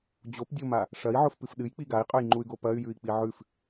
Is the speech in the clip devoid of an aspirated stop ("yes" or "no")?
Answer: yes